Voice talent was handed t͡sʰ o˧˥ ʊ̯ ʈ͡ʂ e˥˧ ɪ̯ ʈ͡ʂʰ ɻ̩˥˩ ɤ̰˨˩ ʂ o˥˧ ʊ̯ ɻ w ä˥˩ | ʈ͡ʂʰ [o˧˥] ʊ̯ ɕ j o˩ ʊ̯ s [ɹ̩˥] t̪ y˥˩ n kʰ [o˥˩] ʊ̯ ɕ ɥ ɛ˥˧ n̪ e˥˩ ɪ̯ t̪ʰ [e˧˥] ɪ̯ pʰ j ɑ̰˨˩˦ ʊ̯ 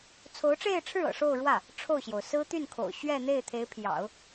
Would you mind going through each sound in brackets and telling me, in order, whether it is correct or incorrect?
incorrect: o˥˩, correct, incorrect: o̰˨˩, correct

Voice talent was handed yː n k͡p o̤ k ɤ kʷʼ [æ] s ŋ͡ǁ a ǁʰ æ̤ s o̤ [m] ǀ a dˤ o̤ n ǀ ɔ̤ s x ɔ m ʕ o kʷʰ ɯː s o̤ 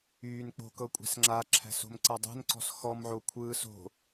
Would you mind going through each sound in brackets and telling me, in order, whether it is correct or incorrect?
incorrect: æ̤, correct

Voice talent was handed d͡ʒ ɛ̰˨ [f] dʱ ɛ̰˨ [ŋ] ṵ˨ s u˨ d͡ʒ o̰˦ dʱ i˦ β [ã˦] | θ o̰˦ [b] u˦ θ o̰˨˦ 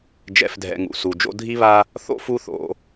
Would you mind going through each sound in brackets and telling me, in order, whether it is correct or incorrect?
correct, correct, incorrect: a˦, incorrect: f

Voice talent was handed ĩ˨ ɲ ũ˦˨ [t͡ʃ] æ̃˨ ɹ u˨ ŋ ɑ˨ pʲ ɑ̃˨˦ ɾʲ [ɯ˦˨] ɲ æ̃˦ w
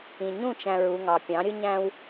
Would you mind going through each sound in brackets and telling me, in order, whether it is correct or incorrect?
correct, incorrect: ɯ˦

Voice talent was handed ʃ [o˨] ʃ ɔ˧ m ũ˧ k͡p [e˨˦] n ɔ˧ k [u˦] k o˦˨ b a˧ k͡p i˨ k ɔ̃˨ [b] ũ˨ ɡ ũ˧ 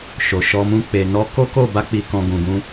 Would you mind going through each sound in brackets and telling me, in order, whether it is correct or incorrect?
correct, incorrect: e˨, incorrect: o˦, incorrect: ɡ

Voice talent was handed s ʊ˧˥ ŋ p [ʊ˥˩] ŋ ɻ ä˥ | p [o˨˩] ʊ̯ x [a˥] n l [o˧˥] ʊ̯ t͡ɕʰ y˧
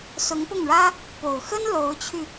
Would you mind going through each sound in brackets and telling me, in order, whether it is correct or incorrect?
correct, correct, incorrect: ə˥, correct

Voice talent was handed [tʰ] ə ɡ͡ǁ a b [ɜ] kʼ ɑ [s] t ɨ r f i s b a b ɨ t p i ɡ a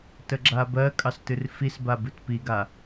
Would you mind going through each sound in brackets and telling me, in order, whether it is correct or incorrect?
incorrect: t, correct, correct

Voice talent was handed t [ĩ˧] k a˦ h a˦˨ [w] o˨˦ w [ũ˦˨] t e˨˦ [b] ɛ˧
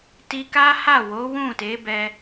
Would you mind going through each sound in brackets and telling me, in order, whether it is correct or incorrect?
incorrect: i˧, correct, correct, correct

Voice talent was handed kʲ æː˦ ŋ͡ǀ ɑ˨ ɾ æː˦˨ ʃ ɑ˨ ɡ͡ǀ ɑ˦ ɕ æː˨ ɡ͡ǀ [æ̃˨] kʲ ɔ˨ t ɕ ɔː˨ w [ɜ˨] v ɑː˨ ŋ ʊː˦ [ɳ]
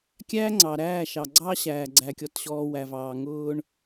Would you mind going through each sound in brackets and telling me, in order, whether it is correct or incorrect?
incorrect: æ˨, incorrect: æ˨, correct

